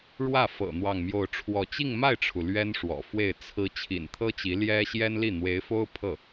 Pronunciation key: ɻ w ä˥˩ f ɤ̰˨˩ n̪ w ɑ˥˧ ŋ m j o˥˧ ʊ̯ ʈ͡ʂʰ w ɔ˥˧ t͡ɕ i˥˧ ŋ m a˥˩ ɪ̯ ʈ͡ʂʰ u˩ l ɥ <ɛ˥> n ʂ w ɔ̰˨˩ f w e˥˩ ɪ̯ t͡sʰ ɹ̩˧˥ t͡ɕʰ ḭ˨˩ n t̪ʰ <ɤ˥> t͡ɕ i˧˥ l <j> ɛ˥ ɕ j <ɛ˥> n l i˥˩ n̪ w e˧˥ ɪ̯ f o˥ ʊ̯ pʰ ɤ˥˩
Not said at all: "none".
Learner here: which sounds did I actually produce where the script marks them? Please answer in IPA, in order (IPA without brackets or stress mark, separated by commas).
ɛ˥, ɤ˥, j, ɛ˥